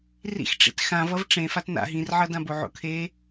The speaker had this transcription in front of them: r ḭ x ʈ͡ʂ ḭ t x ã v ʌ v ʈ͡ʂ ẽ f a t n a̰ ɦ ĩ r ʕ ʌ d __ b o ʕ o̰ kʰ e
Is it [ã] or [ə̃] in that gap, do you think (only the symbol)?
ã